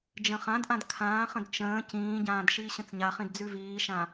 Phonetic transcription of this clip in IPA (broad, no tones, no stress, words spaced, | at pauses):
d͡ʒə̃χãdʔãd kʰãːχə̃d t͡ʃə̃ː cĩːɟãːd ʃiːɕə̃t͡sɲaχĩd d͡zʉviːʃã